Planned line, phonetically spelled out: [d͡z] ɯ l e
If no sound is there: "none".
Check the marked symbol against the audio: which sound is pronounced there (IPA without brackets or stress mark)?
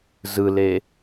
z